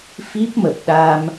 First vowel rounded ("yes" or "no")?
no